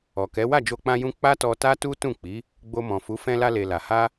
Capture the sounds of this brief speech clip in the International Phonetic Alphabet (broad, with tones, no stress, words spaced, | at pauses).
ɔ˨kɛ˨˦ wa˦˨d͡ʒo˧k͡pã˧jũ˧ k͡pa˦tɔ˧ta˦ tu˦tũ˦˨k͡pi˨˦ | ɡ͡bo˧mɔ̃˨fu˨˦ fɛ̃˧la˧le˨ la˨ ha˧